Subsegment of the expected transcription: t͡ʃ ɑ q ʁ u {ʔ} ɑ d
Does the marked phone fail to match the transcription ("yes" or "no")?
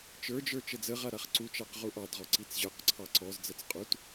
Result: no